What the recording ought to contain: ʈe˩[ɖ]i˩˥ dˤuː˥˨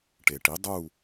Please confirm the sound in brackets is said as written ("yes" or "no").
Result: no